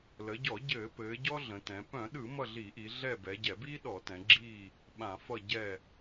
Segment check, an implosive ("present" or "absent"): present